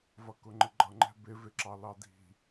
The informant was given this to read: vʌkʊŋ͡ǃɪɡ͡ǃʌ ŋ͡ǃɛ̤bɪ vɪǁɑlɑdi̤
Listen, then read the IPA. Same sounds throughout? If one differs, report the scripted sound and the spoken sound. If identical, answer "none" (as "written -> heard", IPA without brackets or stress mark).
none